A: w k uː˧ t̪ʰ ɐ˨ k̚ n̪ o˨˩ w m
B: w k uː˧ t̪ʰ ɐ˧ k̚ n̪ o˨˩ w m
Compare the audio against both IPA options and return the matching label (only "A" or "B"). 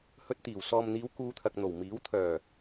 A